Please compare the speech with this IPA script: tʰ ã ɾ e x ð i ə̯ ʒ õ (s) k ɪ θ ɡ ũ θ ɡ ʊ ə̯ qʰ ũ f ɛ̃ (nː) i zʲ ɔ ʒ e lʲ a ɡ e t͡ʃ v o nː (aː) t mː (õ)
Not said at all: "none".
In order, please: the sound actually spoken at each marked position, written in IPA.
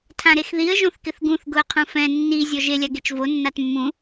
θ, nː, a, ũ

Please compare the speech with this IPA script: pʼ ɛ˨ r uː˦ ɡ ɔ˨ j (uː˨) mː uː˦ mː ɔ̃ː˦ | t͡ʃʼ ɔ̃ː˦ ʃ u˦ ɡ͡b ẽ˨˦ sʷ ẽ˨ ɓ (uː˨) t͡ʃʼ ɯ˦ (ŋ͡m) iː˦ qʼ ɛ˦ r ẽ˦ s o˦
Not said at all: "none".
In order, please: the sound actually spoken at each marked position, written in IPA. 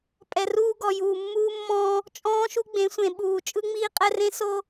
uː˨, uː˨, ŋ͡m

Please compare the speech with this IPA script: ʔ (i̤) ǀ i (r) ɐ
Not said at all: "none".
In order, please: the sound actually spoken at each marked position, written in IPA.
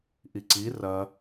i, r

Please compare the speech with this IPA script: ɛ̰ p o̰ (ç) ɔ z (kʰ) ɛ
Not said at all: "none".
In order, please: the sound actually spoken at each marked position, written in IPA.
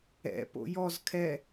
j, kʰ

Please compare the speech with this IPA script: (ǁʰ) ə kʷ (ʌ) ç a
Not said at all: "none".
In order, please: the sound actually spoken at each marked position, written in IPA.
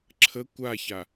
ǁʰ, a

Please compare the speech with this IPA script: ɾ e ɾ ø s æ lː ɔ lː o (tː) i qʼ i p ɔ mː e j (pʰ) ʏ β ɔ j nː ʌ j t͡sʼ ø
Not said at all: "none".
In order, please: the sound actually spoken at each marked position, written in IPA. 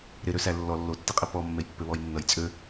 tː, pː

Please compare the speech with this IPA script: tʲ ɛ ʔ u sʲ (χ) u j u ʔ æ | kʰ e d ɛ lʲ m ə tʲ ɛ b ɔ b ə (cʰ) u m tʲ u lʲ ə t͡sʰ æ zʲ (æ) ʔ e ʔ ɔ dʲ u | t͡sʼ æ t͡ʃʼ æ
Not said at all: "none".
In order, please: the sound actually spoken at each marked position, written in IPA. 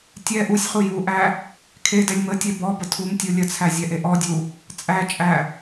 χ, tʰ, ɛ

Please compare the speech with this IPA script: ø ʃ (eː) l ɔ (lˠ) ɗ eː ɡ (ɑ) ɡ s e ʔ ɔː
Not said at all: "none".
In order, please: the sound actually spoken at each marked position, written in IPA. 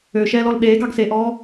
ɛː, l, ɑ

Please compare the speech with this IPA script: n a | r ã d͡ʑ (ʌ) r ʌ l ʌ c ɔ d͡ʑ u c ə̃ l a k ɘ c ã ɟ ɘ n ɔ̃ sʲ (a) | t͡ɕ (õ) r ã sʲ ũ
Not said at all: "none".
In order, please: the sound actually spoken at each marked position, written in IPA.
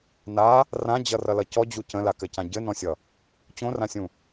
ʌ, ʌ, õ

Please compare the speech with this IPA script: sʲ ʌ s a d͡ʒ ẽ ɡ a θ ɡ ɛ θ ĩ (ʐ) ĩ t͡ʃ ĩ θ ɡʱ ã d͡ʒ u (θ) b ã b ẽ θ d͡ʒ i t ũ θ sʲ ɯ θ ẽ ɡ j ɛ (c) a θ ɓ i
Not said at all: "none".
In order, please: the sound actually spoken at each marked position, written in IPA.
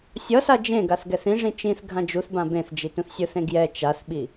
ʐ, θ, t͡ʃ

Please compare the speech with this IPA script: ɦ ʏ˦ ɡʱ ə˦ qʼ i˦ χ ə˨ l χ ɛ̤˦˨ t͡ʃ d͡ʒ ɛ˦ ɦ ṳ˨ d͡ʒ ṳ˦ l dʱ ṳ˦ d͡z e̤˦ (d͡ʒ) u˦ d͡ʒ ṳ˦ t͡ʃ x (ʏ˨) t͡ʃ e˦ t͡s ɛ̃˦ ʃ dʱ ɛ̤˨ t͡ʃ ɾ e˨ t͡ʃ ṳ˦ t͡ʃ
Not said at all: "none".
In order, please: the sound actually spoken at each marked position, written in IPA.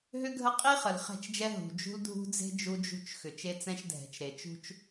d͡ʒ, ʏ˨

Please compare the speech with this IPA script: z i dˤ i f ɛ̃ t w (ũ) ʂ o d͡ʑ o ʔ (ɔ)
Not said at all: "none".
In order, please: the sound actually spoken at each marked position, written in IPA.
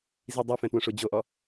õ, ɔ

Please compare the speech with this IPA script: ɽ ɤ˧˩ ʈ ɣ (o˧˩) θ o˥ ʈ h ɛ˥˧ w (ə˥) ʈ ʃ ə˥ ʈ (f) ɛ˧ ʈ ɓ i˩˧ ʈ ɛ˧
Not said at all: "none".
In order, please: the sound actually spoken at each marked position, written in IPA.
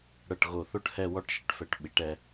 o˧˩, ɔ˥, f

